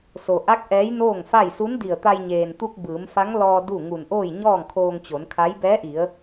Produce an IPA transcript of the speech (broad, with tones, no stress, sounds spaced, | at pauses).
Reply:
s o˩ ʔ a˧˥ k̚ ʔ ɛː˧˥ j n oː˥˨ ŋ f a˥˨ j s u˧˥ n d i˧˩ ə̯ t̪ a˧ j ɲ eː˩ n t̪ u˧ k̚ b ɯː˩˧ m f a˧˥ ŋ l ɔː˧ d u˥˨ ŋ u˧˩ n ʔ oː˥˨ j ɲ ɔː˥˨ ŋ kʰ oː˧ ŋ t͡ɕ o˩˧ n kʰ a˧˥ j b ɛː˧˥ ʔ i˩˧ ə̯